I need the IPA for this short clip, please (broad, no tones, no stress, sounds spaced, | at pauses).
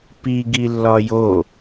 p i ɡ i lː ɒ j o